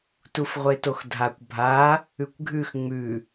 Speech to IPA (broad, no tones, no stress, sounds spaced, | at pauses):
t u f ʁʷ e t o x dʱ a kʷ bʱ a | ʉ kʷ ɡʱ ʉ x ŋ͡m ʉ